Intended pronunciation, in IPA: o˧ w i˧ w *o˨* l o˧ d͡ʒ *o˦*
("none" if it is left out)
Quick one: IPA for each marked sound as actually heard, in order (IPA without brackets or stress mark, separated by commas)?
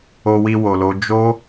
o˨, o˦